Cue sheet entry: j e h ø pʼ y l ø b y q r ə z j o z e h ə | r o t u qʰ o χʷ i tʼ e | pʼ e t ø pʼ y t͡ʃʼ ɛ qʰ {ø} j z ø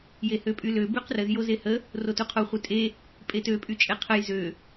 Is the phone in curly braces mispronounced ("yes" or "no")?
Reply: yes